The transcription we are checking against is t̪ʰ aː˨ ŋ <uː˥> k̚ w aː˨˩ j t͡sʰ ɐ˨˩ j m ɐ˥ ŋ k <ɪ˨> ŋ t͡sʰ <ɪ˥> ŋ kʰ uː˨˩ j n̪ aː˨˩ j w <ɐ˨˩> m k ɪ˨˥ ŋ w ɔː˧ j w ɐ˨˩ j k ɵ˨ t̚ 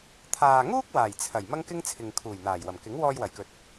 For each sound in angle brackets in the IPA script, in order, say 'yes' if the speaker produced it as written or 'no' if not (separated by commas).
yes, no, no, yes